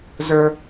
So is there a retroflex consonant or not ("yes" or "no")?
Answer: no